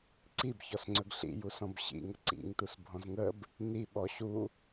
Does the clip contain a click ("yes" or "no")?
yes